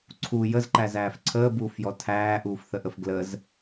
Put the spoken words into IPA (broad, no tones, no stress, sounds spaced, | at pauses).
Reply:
ǀʰ u j ə z ǃ æ z æː f ǀʰ əː b uː f j ɔ tʰ æː ʔ uː f θ ə ʔ ə f ɡ l ə z